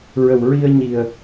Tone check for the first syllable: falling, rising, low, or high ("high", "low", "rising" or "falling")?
low